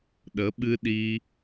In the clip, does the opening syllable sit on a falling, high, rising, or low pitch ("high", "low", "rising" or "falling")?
rising